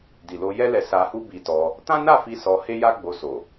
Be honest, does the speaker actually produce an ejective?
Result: no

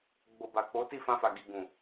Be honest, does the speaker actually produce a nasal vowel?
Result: yes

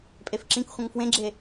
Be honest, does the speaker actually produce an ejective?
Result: yes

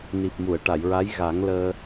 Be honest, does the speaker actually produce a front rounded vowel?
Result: no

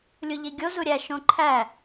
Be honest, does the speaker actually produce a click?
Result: yes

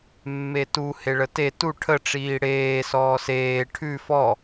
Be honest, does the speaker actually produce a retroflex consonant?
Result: yes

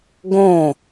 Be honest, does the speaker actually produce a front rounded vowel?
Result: no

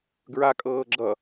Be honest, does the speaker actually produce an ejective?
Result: yes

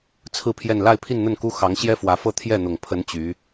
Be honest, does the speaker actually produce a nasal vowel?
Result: no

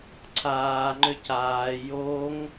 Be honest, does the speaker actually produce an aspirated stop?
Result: yes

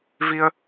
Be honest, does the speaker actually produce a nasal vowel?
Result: no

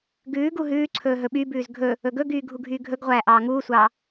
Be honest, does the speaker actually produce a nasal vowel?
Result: no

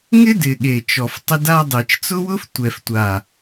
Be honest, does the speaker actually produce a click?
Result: no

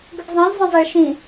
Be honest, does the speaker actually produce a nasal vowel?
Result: yes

